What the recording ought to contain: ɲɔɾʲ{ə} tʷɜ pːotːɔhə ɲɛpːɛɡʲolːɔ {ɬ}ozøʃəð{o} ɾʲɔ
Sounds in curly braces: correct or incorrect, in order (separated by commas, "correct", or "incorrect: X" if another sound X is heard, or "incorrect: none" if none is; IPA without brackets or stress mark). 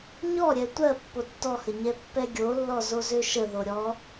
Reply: incorrect: ɛ, incorrect: z, correct